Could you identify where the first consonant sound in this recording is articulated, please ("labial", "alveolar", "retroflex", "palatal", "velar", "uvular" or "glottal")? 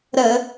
alveolar